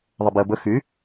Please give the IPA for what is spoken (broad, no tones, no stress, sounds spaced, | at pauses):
ðˤ ə b i ə̯ b ə x y